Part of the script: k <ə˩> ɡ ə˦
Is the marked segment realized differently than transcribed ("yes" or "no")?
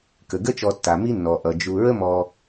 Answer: no